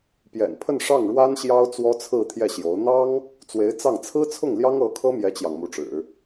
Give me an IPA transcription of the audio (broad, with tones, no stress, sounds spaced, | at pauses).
p j ɛ̰˨˩ n pʰ ə˥˧ n ʂ ɑ˥˩ ŋ ɻ w a˥ n ɕ j ɑ˥ ʊ̯ t͡s w ɔ˥ t͡sʰ ɹ̩˥˧ t̪ʰ j ɛ˥˩ ɕ j o˧˥ ʊ̯ n̪ ɑ˥ ŋ | t͡s w e˧˥ ɪ̯ t͡s ɑ˥˩ ŋ t͡sʰ ɹ̩˥ t͡sʰ ʊ˥˩ ŋ l j ɑ˥ ŋ ɤ˧˥ kʰ ɤ˥ m j ɛ˥ t͡ɕ j ɑ˨ ŋ m u˧˥ ʈ͡ʂ ɻ̩˨˩˦